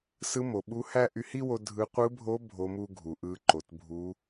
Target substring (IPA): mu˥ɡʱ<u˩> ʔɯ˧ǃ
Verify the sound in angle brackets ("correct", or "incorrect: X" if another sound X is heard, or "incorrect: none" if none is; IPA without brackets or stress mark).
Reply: correct